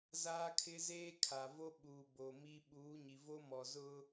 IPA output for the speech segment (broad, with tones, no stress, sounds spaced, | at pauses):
z aː˦ kʰ ɪ˦ z eː˦ kʰ a˨ v o˦ ɓ uː˨ b o˨ m i˦ ɓ uː˨˦ ɲ i˨ v o˦ m ɔ˨ z ʊ˦